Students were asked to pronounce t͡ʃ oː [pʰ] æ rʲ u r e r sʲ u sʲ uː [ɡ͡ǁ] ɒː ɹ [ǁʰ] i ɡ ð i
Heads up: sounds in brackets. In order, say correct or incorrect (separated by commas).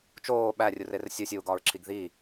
incorrect, incorrect, correct